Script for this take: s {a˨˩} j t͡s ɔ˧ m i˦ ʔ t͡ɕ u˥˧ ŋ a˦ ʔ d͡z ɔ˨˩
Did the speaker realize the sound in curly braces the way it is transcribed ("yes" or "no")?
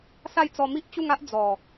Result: no